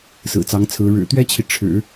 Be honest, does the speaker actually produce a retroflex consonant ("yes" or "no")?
yes